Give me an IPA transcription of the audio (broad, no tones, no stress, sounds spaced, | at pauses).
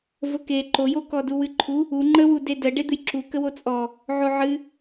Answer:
v ə k e ǃ o j o k ɔ d u w ɨ ǃʰ u | u ŋ͡ǃ ə w u d e d ə ɖ e d̪ ɨ j ǁ u k ə w o t͡sʼ ɔ | ʕ o ʕ ɨ